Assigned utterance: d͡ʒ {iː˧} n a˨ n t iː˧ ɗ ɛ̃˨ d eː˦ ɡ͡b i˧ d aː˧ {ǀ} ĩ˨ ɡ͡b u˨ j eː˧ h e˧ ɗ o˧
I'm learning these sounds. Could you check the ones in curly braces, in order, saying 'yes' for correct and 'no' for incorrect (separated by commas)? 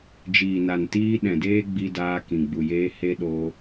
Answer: no, no